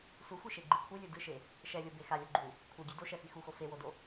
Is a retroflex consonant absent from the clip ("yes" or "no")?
yes